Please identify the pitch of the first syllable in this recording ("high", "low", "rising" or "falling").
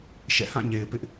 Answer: falling